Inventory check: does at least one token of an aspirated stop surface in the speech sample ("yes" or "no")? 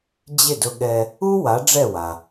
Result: no